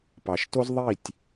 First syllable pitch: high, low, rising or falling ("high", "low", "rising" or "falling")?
low